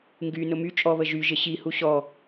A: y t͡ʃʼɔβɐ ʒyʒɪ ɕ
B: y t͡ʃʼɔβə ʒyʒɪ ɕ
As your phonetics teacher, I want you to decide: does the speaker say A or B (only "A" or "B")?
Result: B